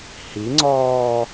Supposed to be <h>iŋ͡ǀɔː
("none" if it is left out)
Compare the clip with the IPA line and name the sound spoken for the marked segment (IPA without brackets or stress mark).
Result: h